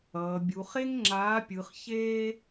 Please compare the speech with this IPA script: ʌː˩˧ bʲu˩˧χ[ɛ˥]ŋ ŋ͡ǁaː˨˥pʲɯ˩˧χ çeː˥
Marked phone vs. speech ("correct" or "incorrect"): incorrect